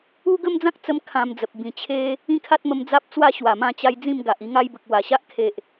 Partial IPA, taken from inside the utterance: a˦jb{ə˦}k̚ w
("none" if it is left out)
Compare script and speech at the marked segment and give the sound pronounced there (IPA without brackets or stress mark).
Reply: ə˨